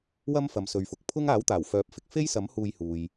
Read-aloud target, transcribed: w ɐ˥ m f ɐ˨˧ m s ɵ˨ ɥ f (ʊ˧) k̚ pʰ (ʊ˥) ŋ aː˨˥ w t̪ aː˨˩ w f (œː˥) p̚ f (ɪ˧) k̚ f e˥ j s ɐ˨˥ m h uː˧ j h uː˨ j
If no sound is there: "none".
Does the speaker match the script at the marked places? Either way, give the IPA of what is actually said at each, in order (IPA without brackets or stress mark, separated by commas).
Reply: ʊ˨, ʊ˥, œː˨˥, ɪ˧